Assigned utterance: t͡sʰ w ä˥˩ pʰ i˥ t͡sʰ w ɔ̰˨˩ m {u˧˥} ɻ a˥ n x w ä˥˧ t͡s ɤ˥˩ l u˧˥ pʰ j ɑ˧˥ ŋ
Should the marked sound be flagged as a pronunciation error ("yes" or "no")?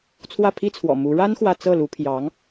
no